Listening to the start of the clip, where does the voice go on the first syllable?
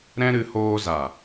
high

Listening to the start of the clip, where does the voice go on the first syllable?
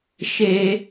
high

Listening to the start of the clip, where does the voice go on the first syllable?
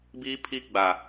high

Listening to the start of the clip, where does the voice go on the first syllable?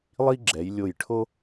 high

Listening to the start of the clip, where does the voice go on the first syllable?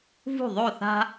falling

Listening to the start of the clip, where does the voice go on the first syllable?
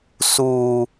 high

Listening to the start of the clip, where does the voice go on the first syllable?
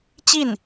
falling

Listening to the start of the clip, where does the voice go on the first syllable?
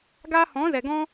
high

